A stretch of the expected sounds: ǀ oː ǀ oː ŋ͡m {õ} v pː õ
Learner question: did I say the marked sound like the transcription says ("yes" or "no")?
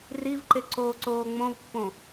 yes